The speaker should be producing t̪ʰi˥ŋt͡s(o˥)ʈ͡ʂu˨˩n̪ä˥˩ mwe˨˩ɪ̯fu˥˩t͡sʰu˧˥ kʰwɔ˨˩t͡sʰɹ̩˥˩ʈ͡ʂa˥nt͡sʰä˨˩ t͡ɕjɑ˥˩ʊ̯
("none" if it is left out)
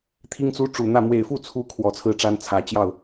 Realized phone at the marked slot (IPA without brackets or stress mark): u˥